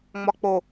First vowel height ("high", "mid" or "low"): low